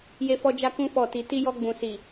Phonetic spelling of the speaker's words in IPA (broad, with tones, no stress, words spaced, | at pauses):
je˦fɔ˦d͡ʒa˦kũ˦ fɔ˦˨ti˧ ti˦ jɔ˧ɡ͡bũ˨si˨